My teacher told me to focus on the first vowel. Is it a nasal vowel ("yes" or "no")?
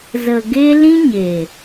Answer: no